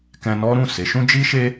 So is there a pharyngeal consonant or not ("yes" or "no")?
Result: no